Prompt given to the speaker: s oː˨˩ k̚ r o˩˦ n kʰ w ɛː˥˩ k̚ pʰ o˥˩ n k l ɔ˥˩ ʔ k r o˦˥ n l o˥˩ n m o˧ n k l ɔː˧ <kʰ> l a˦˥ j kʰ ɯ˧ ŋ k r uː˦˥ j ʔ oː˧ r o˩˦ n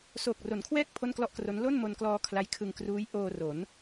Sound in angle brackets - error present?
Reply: no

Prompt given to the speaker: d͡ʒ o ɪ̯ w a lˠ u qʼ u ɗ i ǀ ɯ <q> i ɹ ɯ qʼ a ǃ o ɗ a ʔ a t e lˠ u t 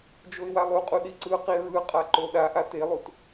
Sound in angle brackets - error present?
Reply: no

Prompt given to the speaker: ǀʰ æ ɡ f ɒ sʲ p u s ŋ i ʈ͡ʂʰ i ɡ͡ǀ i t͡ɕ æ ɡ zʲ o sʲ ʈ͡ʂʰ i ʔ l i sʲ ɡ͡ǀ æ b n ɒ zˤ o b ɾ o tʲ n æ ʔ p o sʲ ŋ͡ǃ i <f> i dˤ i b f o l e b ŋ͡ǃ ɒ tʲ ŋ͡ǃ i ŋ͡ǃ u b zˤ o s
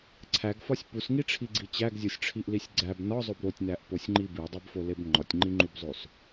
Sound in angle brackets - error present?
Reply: yes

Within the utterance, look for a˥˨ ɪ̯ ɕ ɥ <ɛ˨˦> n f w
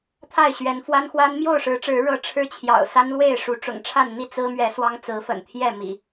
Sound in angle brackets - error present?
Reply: no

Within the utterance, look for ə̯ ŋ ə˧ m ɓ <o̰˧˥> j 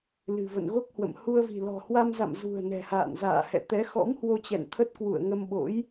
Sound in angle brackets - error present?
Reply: no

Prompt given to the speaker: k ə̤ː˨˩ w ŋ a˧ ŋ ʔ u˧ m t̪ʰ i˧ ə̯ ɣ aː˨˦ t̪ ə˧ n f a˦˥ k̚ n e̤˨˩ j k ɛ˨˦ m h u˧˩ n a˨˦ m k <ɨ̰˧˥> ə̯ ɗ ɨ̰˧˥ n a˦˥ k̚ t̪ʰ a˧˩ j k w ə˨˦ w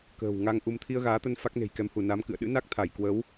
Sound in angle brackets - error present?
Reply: yes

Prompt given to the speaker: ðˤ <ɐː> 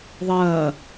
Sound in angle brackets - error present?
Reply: no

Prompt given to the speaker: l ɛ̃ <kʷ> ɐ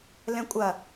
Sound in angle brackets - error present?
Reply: yes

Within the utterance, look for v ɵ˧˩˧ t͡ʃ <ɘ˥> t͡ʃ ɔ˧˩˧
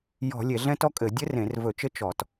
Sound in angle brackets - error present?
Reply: no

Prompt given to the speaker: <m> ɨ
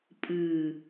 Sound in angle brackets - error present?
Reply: yes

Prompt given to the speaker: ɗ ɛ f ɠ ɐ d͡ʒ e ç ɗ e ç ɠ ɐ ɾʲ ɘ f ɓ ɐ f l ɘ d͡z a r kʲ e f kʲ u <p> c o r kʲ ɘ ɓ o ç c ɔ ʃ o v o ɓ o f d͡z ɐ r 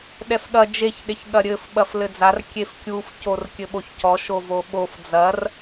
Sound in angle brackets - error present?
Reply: yes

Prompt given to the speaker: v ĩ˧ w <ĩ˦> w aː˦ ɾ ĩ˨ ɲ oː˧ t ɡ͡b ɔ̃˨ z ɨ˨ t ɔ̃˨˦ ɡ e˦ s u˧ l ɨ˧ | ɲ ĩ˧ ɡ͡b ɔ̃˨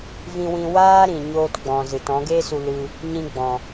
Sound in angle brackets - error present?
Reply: yes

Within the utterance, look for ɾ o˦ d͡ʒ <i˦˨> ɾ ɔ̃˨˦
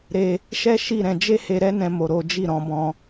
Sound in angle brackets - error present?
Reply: no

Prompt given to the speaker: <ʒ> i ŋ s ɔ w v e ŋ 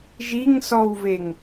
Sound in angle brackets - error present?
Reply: no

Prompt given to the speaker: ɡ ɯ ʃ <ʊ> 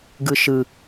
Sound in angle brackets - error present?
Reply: yes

